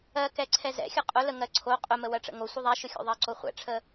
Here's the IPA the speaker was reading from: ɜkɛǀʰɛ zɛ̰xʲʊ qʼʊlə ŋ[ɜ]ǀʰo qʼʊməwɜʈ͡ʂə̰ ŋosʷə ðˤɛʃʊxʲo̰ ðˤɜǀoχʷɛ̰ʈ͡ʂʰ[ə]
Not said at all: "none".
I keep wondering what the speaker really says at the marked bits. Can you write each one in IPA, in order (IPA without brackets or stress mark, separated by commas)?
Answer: ɜ, ə